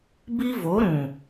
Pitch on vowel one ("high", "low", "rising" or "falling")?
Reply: high